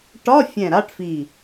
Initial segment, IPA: ʈ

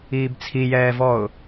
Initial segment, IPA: iː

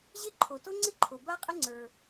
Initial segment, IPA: ʑ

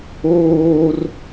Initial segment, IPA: oː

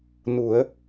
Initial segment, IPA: n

